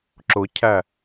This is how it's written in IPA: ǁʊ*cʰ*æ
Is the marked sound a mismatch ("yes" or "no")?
no